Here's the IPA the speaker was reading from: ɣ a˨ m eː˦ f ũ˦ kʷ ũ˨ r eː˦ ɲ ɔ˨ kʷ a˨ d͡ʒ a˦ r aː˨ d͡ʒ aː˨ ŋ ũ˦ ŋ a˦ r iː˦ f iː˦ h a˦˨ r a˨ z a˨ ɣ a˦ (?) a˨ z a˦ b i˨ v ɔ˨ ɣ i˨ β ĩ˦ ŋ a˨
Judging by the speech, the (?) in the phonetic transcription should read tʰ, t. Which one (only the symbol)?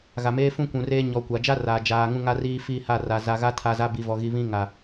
tʰ